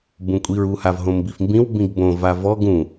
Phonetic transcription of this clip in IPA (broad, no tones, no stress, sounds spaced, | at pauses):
b ũ kʷʼ i ɹ u h a v ɦ õ m b i f m b ĩ w b ĩ ɡ b õ v a v ɔ ɡ ũ